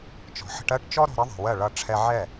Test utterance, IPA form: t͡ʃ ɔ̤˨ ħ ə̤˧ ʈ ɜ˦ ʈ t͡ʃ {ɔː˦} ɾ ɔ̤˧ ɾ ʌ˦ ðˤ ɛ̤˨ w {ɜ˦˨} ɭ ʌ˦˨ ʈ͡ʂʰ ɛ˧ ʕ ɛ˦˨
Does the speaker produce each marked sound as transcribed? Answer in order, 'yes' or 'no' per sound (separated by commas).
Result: no, yes